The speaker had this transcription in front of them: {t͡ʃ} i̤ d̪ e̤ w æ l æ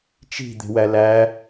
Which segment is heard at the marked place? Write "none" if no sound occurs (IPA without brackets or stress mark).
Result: t͡ʃ